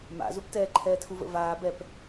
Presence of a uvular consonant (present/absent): absent